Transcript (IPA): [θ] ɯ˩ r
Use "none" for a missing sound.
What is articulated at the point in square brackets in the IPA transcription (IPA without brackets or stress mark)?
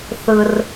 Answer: θ